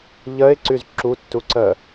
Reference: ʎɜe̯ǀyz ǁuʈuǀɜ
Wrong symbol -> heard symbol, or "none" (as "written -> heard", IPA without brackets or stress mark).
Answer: ʈ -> tː